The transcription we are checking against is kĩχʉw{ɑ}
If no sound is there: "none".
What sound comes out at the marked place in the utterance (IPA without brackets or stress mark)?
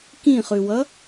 ʌ